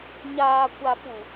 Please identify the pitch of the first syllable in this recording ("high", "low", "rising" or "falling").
low